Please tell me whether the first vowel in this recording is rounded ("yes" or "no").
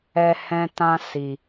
no